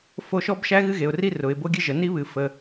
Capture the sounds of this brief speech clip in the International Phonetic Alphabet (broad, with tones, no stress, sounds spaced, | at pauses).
f o˧ ʃ ɔ˦ b ʃ æ˦ ɣ ɨ˦ ɣ e˨ ʊ̯ r i˦ r ʊ˨ ɪ̯ b o˦ ɡʲ ɨ˦ ʒ ə˨ n i˦ β ɨ˨ f ə˨